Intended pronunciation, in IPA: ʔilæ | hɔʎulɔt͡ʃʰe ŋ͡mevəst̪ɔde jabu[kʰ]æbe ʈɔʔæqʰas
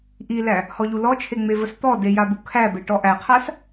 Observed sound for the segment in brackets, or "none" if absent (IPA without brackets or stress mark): kʰ